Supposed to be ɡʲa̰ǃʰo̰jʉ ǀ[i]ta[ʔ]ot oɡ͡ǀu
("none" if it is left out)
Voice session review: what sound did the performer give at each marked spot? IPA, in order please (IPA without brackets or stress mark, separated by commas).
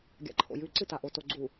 ɨ, ʔ